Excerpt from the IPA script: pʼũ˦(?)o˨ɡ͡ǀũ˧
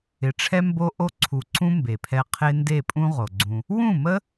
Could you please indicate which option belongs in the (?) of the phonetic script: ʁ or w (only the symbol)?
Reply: ʁ